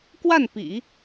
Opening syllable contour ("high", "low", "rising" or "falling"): falling